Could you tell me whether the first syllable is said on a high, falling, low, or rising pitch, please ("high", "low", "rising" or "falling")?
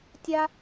high